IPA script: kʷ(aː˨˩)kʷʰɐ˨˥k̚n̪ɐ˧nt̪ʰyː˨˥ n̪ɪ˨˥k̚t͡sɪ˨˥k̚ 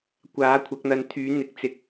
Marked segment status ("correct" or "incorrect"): incorrect